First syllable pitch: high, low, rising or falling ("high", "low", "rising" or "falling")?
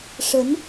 rising